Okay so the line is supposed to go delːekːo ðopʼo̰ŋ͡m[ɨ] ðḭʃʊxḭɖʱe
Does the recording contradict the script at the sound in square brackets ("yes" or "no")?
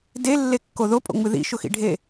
no